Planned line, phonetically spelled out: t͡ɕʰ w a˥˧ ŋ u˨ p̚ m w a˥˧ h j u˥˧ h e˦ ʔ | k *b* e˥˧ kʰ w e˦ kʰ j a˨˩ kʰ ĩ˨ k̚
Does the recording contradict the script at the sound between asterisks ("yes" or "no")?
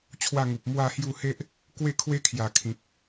yes